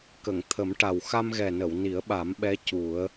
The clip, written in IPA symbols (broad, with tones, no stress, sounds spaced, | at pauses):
k ə˨˩˨ ŋ t̪ʰ ə˨˩˦ m ʈ a˨˩ w x a˧ m ɣ ɛ˨˩ n ə˨˩˨ w n i˨˩˦ ə̯ ɓ a˨˩˦ m ɓ ɛ˧˥ c u˨˩˦ ə̯